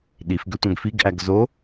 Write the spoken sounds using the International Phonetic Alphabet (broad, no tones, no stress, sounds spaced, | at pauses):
ɗ i f ɡ ø tʷ œ̃ ɡ f i ɡ ʔ æ ɡ z o